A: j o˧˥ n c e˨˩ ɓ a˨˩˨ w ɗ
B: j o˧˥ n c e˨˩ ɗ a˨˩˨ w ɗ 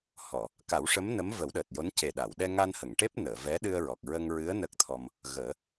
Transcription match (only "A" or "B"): B